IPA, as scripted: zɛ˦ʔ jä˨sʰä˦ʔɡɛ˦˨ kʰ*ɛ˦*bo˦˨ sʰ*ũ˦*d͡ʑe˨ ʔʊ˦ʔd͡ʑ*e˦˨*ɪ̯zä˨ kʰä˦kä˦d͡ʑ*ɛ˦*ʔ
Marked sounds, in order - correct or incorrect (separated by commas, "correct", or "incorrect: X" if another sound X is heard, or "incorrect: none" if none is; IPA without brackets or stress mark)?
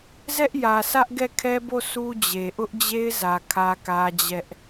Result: correct, incorrect: u˦, incorrect: e˦, correct